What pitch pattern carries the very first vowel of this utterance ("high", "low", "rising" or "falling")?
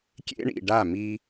high